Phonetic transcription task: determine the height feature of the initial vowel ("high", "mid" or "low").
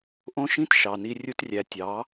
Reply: mid